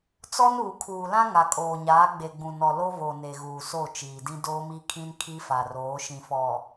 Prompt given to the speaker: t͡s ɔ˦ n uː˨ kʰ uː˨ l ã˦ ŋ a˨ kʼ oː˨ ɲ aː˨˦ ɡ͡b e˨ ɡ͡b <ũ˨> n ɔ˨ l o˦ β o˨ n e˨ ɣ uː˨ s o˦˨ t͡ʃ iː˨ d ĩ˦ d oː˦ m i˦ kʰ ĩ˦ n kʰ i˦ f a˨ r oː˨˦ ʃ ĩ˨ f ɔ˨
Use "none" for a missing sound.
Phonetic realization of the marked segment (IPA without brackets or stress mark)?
ũ˨